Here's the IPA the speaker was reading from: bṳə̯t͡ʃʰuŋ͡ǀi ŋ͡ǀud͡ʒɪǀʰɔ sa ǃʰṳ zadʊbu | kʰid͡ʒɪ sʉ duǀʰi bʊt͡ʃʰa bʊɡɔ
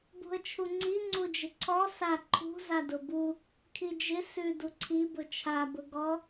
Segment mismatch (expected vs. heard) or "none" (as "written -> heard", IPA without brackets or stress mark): none